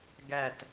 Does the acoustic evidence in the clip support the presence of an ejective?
no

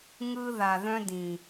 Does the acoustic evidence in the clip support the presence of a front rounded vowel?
yes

